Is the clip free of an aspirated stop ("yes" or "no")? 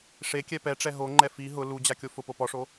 yes